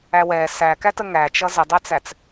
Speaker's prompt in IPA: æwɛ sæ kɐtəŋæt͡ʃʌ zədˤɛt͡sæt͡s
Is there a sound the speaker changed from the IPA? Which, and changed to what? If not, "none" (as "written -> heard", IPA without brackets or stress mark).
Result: ɐ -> æ